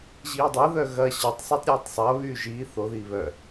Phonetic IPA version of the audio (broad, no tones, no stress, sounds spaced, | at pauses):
ʑ iː dˤ ɐ ð œ ɣ ɐ ɕ ɐ tˤ sˤ o tˤ ɾʲ aː tˤ sˤ ɐ β yː ʒ iː θ o ð iː β œ